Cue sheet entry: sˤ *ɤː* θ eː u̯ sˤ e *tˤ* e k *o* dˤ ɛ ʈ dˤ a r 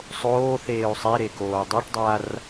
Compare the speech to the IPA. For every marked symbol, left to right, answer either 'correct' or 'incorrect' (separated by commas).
incorrect, incorrect, incorrect